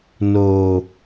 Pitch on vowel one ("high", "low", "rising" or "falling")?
low